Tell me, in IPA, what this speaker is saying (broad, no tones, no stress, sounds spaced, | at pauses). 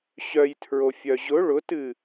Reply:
ɕ œ j tʰ ɹ o fʲ œ ʑ ʊ ɭ ʊ t ɨ